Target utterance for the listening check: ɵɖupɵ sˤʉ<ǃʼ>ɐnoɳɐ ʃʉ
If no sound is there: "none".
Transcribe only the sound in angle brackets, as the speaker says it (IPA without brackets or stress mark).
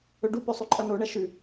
ǃʼ